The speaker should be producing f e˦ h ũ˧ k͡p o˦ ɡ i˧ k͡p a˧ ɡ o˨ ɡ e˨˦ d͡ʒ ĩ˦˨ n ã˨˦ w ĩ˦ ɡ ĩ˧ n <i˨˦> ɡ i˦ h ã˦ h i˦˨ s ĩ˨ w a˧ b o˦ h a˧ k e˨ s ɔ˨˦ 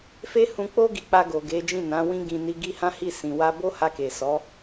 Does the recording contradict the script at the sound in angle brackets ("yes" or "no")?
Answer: yes